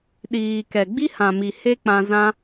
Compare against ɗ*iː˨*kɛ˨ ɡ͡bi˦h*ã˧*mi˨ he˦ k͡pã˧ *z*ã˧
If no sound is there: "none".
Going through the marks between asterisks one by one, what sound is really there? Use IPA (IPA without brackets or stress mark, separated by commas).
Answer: iː˨, ã˨, z